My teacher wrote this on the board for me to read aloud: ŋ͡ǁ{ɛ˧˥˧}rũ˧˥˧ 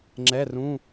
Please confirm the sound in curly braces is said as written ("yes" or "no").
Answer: yes